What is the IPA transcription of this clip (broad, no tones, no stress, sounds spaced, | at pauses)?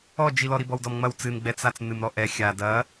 ɔ d͡ʒ i l ɔ ɾ i b ɔ w d ɔ m ŋ͡m ɐ w t͡s ɨ n ɡ͡b ɛ t͡s a t͡s n ɨ m ɾ ɔ ʔ ɛ xʲ a d ɐ